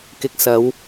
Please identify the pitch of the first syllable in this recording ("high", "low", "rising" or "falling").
low